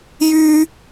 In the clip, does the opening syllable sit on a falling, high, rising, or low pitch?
high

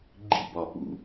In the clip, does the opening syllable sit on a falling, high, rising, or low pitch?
high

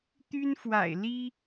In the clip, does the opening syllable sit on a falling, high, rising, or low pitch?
high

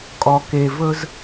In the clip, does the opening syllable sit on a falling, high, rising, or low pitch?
low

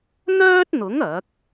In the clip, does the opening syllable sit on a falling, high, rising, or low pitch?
high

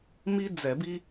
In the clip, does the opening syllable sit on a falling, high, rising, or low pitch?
high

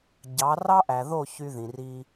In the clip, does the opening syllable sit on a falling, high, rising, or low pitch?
rising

